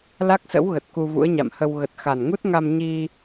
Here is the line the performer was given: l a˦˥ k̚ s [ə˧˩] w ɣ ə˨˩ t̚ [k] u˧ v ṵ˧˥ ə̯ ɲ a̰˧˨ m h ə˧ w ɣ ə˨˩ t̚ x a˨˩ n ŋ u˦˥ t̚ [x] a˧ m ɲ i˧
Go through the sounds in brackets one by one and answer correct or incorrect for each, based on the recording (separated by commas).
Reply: incorrect, correct, incorrect